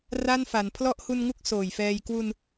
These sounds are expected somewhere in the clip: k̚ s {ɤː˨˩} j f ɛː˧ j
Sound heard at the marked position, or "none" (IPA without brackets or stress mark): oː˨˩